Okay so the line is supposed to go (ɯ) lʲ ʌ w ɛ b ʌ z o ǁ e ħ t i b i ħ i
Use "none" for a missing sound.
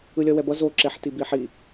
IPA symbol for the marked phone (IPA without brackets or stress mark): ɯ